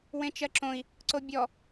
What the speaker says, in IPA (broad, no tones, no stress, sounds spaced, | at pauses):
w ẽ t͡ʃ ɜ ǁ õ i̯ | ǀ o bʲ ɔ